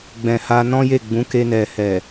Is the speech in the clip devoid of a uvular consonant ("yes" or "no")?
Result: yes